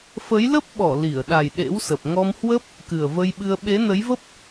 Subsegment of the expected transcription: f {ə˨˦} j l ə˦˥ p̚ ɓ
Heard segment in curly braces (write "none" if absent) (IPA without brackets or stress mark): ə˨˦